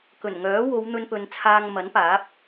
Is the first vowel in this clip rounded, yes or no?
yes